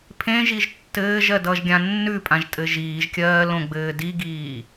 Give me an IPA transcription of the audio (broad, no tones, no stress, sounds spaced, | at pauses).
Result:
pʰ ẽ ʒ i ʒ tː ɘː ʒ ɜ d ʌ ʒ ɡʲ ã nː ʉ pʼ ã ʒ tʼ ɘ ʒ iː ʒ kʲ ɜː l õ ɡ͡b ɘː d i ɡ iː